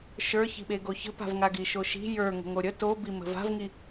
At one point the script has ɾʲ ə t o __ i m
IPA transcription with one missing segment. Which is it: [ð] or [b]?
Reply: b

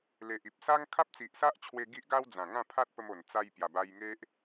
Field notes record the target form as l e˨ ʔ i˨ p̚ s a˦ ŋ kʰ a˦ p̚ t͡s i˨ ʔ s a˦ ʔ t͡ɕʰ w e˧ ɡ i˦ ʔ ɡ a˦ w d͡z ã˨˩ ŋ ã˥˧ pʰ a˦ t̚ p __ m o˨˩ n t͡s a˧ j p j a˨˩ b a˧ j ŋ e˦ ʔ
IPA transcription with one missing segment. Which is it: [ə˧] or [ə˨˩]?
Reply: ə˧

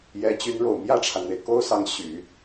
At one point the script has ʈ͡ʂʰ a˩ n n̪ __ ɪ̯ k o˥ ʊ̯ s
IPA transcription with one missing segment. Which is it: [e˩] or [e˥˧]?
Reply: e˩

